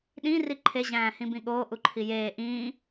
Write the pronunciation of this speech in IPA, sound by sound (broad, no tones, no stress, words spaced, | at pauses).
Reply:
ɗĩ riǃʰe ʑæ̃ːhĩbĩɠoː ʔuǃʰijeː ʔĩː